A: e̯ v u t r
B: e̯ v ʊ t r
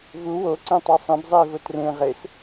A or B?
B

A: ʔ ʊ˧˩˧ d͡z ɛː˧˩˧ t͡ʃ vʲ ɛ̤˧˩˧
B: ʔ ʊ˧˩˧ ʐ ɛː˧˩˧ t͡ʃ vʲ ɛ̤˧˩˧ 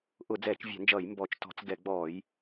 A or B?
A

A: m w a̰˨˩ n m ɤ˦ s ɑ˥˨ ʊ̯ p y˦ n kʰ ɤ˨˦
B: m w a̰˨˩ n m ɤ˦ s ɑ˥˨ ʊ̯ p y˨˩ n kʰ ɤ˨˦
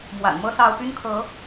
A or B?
A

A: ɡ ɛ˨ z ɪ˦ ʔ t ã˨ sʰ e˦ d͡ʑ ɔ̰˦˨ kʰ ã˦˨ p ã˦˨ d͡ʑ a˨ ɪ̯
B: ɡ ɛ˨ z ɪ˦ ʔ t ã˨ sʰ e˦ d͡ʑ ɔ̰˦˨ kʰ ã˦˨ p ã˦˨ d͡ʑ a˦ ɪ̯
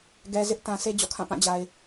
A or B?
A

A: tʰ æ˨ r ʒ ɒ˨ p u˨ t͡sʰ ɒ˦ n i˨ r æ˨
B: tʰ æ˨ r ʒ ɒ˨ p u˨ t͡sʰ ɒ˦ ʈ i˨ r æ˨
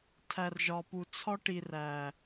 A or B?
B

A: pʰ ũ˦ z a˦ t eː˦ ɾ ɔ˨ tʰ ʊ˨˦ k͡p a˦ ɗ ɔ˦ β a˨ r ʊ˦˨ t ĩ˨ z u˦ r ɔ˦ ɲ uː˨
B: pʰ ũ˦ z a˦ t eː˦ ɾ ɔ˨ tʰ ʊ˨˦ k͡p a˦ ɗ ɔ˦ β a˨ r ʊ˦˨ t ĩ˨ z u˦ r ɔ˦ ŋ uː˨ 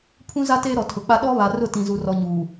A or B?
A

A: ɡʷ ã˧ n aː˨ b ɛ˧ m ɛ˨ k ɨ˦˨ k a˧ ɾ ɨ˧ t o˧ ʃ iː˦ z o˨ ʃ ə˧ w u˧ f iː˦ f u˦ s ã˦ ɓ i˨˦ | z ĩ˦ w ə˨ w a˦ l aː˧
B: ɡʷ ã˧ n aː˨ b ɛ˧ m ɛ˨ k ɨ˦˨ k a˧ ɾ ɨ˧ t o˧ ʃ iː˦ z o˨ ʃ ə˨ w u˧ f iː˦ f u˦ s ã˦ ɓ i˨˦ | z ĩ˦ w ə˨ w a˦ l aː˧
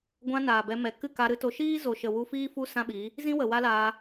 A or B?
B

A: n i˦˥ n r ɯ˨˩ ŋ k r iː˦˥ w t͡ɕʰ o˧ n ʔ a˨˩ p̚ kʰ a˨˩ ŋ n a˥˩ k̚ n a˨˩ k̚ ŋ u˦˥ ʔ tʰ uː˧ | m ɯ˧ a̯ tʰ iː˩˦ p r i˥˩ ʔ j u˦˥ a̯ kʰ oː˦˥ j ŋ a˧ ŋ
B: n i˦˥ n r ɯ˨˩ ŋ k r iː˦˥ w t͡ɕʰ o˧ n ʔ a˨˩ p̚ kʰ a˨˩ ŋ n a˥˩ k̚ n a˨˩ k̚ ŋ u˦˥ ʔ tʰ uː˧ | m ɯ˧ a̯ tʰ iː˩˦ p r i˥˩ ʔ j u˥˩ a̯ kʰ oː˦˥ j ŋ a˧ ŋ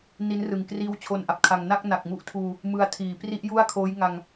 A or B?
B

